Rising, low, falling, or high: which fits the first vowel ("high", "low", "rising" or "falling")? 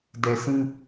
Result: low